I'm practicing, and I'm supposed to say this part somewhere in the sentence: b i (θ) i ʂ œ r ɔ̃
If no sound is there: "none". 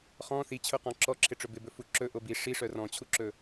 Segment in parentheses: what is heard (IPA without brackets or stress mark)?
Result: ʂ